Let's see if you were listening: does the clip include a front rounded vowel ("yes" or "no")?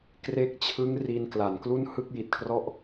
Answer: no